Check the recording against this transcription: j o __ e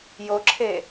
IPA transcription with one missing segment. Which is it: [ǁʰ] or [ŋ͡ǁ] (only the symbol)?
ǁʰ